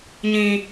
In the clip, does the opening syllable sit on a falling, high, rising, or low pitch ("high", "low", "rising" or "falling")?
low